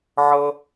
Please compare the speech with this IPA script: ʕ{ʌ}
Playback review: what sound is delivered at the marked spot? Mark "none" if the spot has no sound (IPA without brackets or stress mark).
ʌ